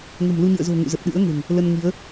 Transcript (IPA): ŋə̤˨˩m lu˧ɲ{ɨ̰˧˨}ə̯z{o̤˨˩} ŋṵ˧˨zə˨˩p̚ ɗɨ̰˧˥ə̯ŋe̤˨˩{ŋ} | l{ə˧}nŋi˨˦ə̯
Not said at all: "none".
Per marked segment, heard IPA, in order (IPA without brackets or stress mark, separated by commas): ɨ̰˧˨, o̤˨˩, ŋ, ə˧